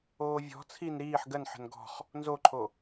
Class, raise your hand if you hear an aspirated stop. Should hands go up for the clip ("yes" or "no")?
yes